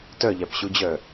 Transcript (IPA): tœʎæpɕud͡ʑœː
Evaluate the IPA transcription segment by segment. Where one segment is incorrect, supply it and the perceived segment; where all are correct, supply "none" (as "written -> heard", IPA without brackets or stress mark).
none